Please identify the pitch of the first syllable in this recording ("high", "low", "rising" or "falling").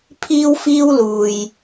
high